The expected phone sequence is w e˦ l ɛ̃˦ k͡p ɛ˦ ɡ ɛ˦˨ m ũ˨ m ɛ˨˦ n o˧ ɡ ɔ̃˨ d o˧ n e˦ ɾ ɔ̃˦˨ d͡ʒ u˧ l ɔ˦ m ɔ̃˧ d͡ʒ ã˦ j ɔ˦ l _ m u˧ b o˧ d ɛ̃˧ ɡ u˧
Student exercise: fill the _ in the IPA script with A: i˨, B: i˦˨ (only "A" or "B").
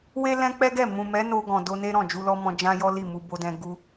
B